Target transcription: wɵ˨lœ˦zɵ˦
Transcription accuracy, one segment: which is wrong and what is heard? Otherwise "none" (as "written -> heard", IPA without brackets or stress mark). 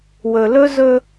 œ˦ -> ɵ˦